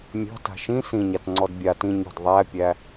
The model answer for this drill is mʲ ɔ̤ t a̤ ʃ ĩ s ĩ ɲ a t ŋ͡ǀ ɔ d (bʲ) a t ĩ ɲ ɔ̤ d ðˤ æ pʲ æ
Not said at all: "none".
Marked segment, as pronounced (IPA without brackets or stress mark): bʲ